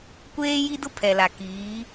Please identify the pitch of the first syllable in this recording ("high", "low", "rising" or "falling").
high